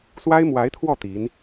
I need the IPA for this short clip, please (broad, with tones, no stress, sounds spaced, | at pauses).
s w a˥ ɪ̯ m w a˧˥ ɪ̯ t̪ʰ w ɔ˥˩ t̪ i˧˥ n